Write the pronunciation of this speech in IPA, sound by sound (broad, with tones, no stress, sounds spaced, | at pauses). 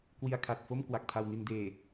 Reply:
k w i˧ a̯ kʰ a˨˩ t̚ f o˥˩ m k w a˨˩ k̚ tʰ a˧ w n i˧ n d eː˨˩